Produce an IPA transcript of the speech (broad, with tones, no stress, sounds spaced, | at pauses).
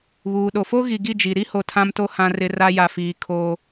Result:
β uː˨ ɗ o˨ f o˦ ɣ i˨ ɡ i˦˨ d͡ʒ i˨ ɾ i˦ h o˨ tʰ ã˦ m t o˦ h ã˨ r ɪ˨ r a˦ j a˨ f iː˨ kʰ oː˦